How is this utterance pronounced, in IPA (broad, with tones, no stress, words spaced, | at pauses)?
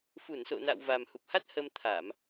fu˧˩nso̰˧˨na̰˧˨w va˨˩mhu˨˩p̚ha˦˥t̚ hə˧mt̪ʰa˧˩˨m